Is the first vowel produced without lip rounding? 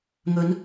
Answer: no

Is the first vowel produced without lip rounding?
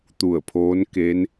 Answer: no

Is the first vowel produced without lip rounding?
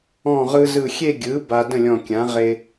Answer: no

